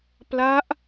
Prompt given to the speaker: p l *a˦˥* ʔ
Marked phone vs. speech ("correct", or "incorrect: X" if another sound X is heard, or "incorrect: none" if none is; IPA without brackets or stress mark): correct